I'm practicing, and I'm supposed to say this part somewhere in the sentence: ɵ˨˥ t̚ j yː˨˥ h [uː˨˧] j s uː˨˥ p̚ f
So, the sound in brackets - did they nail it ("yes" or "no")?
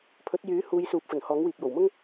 yes